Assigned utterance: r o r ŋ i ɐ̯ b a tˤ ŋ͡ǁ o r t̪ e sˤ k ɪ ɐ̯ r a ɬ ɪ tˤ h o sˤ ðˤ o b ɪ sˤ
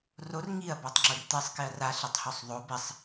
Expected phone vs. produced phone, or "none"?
none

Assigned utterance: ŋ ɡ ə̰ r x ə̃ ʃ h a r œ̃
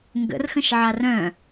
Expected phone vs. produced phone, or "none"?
h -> ʕ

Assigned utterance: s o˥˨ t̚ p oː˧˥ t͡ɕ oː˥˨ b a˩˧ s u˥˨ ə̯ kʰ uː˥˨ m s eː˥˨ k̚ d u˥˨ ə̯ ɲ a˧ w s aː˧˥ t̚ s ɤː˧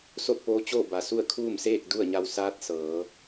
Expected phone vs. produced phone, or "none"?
ɤː˧ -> ɤː˩˧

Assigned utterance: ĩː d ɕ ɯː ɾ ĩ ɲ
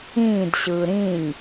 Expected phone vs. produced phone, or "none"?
none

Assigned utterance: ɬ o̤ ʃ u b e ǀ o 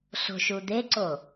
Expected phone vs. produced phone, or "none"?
b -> d̪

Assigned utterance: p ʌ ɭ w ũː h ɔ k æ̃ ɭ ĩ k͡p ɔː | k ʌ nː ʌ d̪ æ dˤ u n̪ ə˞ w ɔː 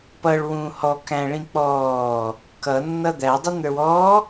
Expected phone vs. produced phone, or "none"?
none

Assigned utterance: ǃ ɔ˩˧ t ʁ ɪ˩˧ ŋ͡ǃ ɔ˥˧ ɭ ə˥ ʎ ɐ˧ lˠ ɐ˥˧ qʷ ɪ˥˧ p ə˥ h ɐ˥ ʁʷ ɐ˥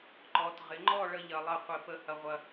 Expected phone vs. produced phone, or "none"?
none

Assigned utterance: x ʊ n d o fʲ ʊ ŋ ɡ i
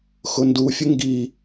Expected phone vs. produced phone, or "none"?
o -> u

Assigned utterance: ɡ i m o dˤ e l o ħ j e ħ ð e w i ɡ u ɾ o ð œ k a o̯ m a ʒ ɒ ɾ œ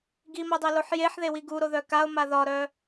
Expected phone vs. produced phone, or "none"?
ʒ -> ð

